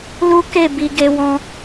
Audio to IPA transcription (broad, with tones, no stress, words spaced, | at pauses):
lu˦ ke˦˨ bi˧ɡe˧wɔ̃˧